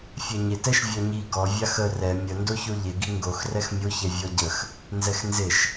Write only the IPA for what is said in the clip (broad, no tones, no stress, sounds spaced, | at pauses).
fʲ ɛ ɲ ɪ t ɛ ʃ vʲ ɔ ɲ i ɡ ɔ vʲ a x ə r ɛ mʲ ə n d o ç o ʎ ɪ ɡ i ŋ ɡ o x r ɛ x mʲ o ç ɛ vʲ ɔ ɟ ə x | n z ɛ x n z ɪ ʃ